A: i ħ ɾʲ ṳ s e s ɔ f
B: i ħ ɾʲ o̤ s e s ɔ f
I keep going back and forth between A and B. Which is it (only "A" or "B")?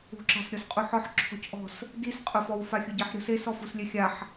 B